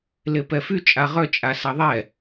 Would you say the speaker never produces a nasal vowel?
yes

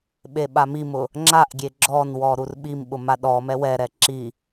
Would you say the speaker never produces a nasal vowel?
yes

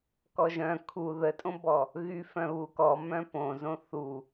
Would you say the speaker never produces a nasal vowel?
no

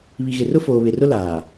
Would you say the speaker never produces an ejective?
yes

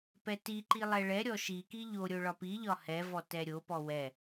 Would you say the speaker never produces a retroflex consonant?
no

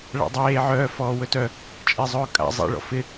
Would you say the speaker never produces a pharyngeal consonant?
no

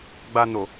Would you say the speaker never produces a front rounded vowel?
yes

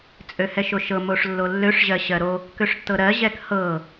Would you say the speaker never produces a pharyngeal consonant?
yes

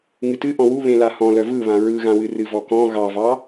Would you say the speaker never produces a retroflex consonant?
yes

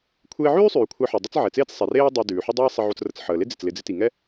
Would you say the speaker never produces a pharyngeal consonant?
no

